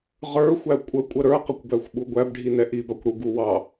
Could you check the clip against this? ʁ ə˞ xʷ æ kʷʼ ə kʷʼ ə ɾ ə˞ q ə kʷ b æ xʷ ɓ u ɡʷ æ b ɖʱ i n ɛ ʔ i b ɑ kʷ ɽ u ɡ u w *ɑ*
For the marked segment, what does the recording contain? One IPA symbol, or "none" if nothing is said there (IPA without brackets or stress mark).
ɑ